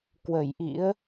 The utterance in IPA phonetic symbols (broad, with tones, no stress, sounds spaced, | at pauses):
k w ə˧˩ j ʔ ḭ˧˥ ə̯